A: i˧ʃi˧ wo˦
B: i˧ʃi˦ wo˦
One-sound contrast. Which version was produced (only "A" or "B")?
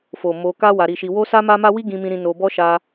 A